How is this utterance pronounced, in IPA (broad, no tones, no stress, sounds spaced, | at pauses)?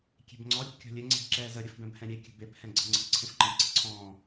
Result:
kʲ e̤ b ŋ͡ǀ ɔ ɾʲ ə̤ b kʲ ɔ̤ lʲ ɘ ŋ͡ǀ e̤ b ǁ ɛː z ə ɾʲ ə f b ɛ̃ b h ɛ̃ ɾʲ e kʲ ə̤ b e p h ɛ̃ ɡ͡ǀ ə̤ ŋ͡ǀ ə̤ ǀʰ ẽ f ǃ ə̃ z ǀ ɘ ǀʰ ɔ̃ː